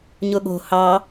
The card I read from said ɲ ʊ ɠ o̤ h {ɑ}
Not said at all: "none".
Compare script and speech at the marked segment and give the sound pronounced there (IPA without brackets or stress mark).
ɑ